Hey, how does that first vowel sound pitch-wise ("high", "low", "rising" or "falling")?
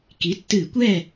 rising